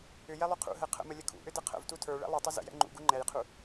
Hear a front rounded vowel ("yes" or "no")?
yes